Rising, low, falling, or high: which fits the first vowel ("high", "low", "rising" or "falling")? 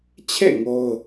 falling